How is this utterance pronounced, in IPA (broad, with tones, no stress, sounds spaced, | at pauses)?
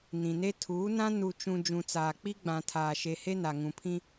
n ĩ˨ n e˦ tʰ uː˨˦ n ã˦ n u˨ t͡ʃ ũ˨ d͡ʒ ũ˨ t͡s aː˨ k͡p i˦ ɡ͡b ã˨ tʰ aː˨ ʃ e˨ h e˦ n a˨ ŋ ũ˨ pʰ ĩ˦